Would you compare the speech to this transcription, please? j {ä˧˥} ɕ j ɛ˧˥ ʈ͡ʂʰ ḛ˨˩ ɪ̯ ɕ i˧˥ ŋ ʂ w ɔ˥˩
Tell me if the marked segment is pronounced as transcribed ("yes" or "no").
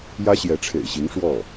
no